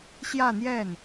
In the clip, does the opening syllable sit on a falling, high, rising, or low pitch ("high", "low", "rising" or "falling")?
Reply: falling